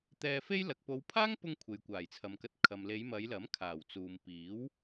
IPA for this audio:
t̪ ɛː˧ f e˥ j l ɐ˨ k̚ p o˨˧ w pʰ aː˥ ŋ p ʊ˧ ŋ kʷʰ e˨ j kʷ aː˨˩ j t͡sʰ ɐ˨ m k ɐ˧ t̚ kʰ ɐ˨ m l e˨˧ j m ɐ˨˧ j l ɐ˨˥ m kʰ aː˨˩ w t͡s uː˨ m p iː˨˥ w

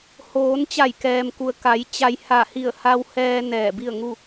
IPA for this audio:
h oː˩˧ n t͡ɕ a˧˩ j k ɛː˩ m k u˩ ə̯ k a˩˧ j t͡ɕ a˧ j h a˧˩ h i˧˩ ə̯ h a˧ w h ɛː˧ n ɛː˧˩ b i˥˨ ə̯ ŋ u˥˨

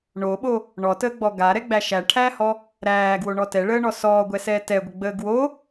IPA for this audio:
ɳ o ɓ o | ɳ ɔ t əː ɡ͡b ɔ ɡ a ɾ ɛ ɡ͡b æ ʃ æ ʈʰ æː h ɔ | ɾ æː ɡ w o ɳ ɔ t ɛ ɭ əː ɳ ɔ s ɔː ɡʷ ɛ s ɛː t ɛ ɡʷ ə ɡ͡b əː ɡ w o

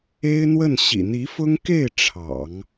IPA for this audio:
e˥ ɪ̯ n̪ w ə˥˩ n ɕ ḭ˨˩ n̪ i˧˥ f ʊ˥ ŋ k e˥˩ ɪ̯ ʈ͡ʂʰ ɑ̰˨˩˦ ŋ

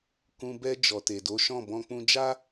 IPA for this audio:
k ũ˧ b ɛ˧ d͡ʒ ɔ˨ t e˨ d o˨˦ ʃ ɔ̃˦˨ b ɔ̃˧ k͡p ũ˧ d͡ʒ a˦

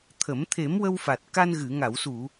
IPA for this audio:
t̪ʰ ə˨˩˦ m t̪ʰ e˨˩˦ m w ə˧ w f a˨˩ t̚ k a˧ n ɣ ɨ˨˩˨ ŋ a˨˩˨ w s u˨˩˨

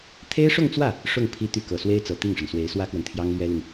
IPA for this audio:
t̪ʰ e˥ ɪ̯ ʂ ʊ˥˧ ŋ t͡s w ä˥˩ | ʂ ʊ˥˩ ŋ pʰ i˥ t̪ y˥˩ k ɤ˨˩ s w e˥ ɪ̯ t͡s ɤ˨˩ t̪ i˥˩ ŋ ʂ ə˩ n s w e˧˥ ɪ̯ s w ä˥ k w ə˨ n t̪ʰ j ɑ˥ ŋ l ɥ ɛ˥ l i˨ ŋ

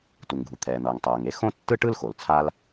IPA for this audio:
t u˩ ŋ ɡʱ u˩ t̪ʰ ɛː˩ n̪ ʌː˩ ŋ tˤ ʌː˩ ŋ e˥ x õ˥ tː ɯ˥ ʈ ɯ˥ l x o˩ l t͡sʰ a˥ l

